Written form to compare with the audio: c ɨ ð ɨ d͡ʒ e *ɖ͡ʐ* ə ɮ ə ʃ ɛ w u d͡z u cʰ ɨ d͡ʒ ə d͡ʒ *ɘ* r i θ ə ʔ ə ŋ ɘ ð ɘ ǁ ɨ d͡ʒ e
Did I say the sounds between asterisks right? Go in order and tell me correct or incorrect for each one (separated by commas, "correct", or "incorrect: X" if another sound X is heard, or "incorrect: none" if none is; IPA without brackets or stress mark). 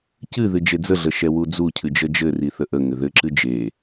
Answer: incorrect: d͡z, correct